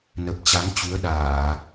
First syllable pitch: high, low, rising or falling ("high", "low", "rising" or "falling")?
low